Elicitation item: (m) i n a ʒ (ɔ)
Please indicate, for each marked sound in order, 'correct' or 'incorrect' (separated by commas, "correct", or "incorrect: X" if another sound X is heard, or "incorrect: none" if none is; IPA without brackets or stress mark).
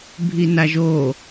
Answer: incorrect: bʱ, incorrect: o